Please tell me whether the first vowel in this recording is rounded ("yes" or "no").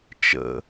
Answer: no